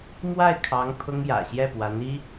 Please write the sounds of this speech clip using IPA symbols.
mwa˥˩ɪ̯kʰɑ˧˥ŋ pʰʊ˥ŋjä̰˨˩ ɕjɛ˥˩pwa˧˥ni˥

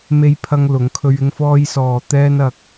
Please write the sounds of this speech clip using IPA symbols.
me˥jpʰɐ˥ŋlʊ˨˥ŋkʰɵ˥ɥ ɪ˥ŋfɔː˥jsɔː˧ t̪ɛː˥nɐ˧k̚

